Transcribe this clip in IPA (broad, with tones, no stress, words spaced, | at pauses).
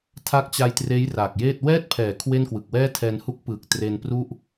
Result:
tʰa˦˥k̚t͡ɕa˧jtreː˦˥j ra˨˩k̚jeː˥˩t̚ wɛː˥˩t̚pʰɛː˩˦ kʰwe˥˩n kwɯ˨˩k̚wɛː˥˩tʰɛː˧n hu˦˥k̚pɯː˨˩k̚ tre˧npru˥˩ʔ